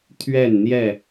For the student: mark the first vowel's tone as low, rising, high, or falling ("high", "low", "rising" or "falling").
falling